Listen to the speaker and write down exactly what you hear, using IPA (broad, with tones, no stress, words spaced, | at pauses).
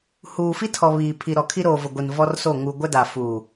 huː˨fi˦tʰɔ˨ βiː˨pʰi˨ɾɔ˨kʰi˦ ɾoː˨vʊ˨ɡʷi˨n vɔ˦rso˦˨ ŋu˨ ɡʷɛ˦da˨ fuː˨